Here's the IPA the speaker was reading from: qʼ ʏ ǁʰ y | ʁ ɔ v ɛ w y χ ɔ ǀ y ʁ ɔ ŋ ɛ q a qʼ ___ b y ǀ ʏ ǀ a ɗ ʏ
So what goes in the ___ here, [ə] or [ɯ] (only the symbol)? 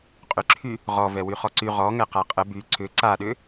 ə